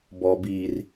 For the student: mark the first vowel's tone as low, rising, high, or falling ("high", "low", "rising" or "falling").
low